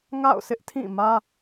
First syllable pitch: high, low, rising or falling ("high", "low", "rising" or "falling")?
falling